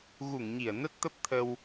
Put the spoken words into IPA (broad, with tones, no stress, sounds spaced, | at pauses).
ɣ u˧˩ ŋ ɲ i˧˩ ə̯ n ə˦˥ t̚ t̪ ə˦˥ p̚ t̪ʰ ə˧ w